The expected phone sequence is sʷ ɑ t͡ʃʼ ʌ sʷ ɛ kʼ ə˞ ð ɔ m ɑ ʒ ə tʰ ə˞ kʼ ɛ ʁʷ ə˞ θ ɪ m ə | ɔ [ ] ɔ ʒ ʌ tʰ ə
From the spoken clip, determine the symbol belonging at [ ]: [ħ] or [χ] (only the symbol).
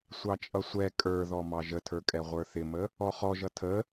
χ